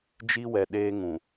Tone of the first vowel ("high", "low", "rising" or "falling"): high